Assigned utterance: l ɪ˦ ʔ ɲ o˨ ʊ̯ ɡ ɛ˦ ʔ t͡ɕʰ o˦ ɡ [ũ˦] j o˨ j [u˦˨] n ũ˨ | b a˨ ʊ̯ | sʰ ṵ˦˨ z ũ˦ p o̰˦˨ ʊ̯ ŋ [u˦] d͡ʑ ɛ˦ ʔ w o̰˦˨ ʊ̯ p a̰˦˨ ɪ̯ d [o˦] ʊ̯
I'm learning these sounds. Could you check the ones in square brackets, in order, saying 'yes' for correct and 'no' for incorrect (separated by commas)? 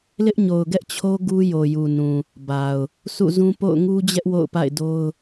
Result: no, no, yes, yes